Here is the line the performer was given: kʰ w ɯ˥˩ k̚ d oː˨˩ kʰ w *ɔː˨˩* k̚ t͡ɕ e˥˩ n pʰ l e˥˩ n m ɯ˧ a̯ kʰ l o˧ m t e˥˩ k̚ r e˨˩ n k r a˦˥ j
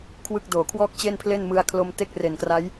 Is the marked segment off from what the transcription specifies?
yes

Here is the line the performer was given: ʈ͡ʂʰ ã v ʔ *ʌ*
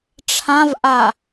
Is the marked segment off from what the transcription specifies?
yes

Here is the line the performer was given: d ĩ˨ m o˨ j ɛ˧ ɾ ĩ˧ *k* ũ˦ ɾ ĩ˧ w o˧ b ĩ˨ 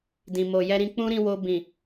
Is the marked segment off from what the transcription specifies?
yes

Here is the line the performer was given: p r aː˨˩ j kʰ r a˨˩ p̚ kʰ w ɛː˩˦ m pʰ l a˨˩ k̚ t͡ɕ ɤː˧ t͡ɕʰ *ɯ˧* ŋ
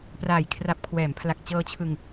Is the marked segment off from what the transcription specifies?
no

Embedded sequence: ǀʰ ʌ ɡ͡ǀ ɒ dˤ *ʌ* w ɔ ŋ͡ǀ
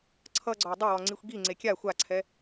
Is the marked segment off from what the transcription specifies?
no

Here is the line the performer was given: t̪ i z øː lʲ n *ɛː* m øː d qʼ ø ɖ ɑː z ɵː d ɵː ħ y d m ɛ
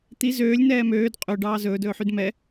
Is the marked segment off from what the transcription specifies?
no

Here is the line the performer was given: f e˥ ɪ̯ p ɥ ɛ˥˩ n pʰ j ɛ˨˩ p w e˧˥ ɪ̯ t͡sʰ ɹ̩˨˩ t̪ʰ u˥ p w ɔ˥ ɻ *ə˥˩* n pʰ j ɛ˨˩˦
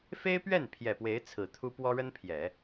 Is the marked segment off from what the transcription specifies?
yes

